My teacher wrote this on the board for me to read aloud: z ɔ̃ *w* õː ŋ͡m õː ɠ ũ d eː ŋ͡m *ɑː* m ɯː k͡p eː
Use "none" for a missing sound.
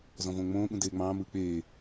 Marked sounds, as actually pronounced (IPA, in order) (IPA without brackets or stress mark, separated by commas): v, ɑ̃ː